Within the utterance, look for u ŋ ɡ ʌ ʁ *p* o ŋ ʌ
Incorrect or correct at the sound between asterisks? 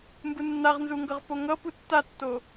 correct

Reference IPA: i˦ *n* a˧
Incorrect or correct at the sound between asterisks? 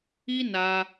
correct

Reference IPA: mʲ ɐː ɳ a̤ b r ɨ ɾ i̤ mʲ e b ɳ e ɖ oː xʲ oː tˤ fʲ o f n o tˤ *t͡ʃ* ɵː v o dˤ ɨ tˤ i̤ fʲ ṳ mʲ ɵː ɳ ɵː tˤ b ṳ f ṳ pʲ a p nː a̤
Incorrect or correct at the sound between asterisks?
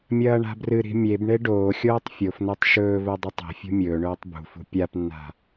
incorrect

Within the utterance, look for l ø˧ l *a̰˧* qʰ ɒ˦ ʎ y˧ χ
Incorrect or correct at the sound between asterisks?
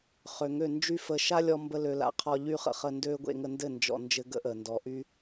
incorrect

